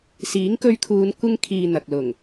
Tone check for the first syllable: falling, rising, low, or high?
rising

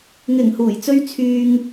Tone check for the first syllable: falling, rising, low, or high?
low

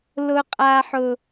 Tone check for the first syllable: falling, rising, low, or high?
low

